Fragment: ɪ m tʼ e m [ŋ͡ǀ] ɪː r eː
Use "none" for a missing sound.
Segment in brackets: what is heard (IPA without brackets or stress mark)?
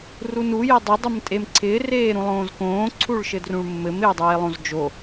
ǀʰ